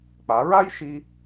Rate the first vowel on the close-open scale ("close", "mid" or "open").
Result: open